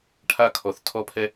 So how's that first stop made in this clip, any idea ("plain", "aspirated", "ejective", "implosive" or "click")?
aspirated